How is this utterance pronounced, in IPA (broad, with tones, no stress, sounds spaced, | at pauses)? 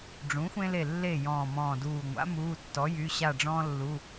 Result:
ɖ͡ʐ ũ˩˥ xʷ ẽ˦ l e˧˩ lː e˧˩ j ɔ̃ː˧˩ m ɔ̃ː˧˩ d uː˧˩ ŋʷ a̰˩˥ m uː˩˧˩ tː ɔ˩˥ j y˩˧˩ ɕ a˧˩ ɖ͡ʐ ɔ̃ː˦ lː u˩˧˩